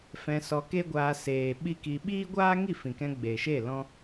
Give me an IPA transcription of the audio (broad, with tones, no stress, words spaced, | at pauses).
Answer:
fɛ̃˧sɔ˧ke˦ɡʷaː˧ seː˨ɓi˦ki˧ ɓiː˦ɡʷaː˦ ŋi˦˨fĩ˨kɛ̃˧ ɡ͡be˨ʃe˦˨ lɔ̃˦